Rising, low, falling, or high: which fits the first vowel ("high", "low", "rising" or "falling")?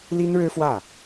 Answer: high